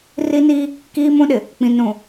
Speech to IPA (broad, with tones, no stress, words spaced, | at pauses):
ri˦niː˦ | kiː˦mũ˦ɗɪ˨ | k͡pĩ˨nɾũ˨